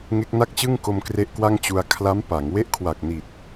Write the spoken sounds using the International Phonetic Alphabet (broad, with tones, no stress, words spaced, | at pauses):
ŋe˦˥k̚na˥˩k̚t͡ɕɯ˥˩ŋko˧m kre˦˥ʔkwa˥˩ŋ t͡ɕu˧a̯ kʰla˦˥m pa˩˦ŋ we˥˩ʔkʰwa˨˩k̚ niː˨˩t̚